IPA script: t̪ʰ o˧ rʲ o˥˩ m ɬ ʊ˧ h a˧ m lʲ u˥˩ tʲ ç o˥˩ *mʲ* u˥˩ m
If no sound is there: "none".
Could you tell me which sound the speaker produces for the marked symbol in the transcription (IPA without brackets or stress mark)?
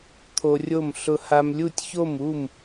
m